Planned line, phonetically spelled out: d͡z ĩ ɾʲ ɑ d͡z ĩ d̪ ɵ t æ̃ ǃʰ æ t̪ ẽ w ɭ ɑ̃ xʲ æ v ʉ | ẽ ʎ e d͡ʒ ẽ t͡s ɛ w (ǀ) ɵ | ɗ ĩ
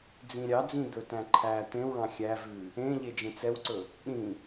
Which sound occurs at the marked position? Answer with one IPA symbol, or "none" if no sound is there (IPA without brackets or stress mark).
ǀ